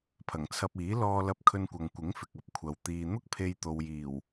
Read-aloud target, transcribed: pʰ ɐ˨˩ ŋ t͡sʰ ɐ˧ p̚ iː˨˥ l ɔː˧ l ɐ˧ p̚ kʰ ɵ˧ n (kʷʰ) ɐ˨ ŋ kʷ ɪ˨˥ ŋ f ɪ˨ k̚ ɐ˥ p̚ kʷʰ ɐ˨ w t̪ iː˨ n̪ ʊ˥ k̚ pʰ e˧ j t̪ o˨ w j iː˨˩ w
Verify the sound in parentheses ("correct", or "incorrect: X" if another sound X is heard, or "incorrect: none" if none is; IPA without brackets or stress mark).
incorrect: kʷ